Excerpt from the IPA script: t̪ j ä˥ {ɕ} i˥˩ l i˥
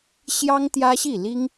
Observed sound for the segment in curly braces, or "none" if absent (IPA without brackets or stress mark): ɕ